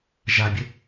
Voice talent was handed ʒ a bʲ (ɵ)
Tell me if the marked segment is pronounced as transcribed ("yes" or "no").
no